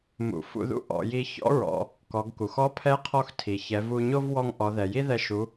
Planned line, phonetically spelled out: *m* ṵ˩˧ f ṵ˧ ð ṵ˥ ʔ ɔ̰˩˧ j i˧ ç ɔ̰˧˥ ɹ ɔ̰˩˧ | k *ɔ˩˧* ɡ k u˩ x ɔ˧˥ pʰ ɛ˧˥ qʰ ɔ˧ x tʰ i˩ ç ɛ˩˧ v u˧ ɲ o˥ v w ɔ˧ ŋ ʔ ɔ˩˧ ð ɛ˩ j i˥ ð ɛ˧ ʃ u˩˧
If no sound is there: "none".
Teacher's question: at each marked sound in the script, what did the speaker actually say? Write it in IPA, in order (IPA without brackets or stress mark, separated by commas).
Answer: m, ɔ˩˧